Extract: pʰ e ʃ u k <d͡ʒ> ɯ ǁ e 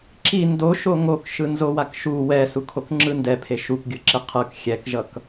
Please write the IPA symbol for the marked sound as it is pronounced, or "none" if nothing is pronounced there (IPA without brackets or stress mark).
ɡʲ